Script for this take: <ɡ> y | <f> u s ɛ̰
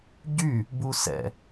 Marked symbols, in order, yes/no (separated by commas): no, no